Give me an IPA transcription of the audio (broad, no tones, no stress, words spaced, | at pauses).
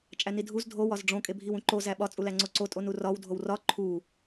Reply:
t͡ʃʼænidʱuz dʱo wɒzɖ͡ʐõ kʼebʱiwũǃo zæɓɒ t͡sʼulæŋ͡ǀoǀo tʼonurɒw dʱowrɒ ǃʰu